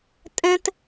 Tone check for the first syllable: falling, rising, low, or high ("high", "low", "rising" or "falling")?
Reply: high